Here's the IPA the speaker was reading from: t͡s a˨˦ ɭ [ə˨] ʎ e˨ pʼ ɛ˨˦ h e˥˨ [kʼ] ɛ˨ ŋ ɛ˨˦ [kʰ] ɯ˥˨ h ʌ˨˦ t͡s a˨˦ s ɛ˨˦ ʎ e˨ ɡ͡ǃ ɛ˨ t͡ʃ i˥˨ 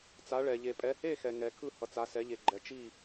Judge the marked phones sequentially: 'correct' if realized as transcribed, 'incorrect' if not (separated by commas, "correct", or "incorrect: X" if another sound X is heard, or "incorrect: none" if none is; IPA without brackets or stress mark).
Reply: incorrect: ɛ˨, incorrect: x, correct